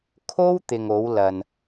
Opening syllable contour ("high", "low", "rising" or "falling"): high